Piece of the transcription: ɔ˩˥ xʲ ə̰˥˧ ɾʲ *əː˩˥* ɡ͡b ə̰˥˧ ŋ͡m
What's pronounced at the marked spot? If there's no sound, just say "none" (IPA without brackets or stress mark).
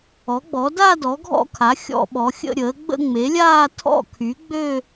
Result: əː˩˥